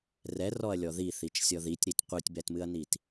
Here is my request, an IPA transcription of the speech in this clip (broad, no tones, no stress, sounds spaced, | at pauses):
r ɛ r ɔ ɐ̯ lʲ ɔ ð i θ i t͡ʃ sʲ ɔ ð i tʲ ɾ i t qʷ ɨ tʲ b ɛ t m ɨ ɐ̯ n i t